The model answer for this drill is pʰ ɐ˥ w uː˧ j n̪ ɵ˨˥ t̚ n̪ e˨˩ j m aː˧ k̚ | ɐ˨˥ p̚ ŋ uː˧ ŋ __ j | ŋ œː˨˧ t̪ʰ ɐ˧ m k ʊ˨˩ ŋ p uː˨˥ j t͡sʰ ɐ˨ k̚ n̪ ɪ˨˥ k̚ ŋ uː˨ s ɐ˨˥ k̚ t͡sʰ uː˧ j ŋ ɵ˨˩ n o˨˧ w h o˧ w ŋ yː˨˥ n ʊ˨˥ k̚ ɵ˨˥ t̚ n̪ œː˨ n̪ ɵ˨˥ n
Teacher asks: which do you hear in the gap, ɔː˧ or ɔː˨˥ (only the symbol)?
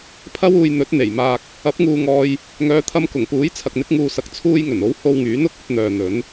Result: ɔː˧